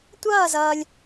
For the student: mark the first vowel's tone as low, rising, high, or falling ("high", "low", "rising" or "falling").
falling